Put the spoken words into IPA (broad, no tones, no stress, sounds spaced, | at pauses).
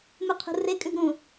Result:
m u qʰ ṳ r e kʼ ʉ ɡ ɾ ũ